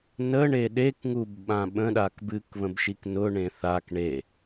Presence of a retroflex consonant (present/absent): present